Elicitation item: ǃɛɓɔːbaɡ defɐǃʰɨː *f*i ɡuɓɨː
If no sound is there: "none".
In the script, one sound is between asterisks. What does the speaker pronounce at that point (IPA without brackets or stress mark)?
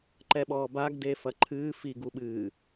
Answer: f